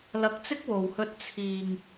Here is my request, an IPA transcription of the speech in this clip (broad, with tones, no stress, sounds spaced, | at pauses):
l ɐ˧ k̚ t͡s ɪ˥ k̚ w o˨ w h ɵ˧ t̚ t͡sʰ iː˨ ŋ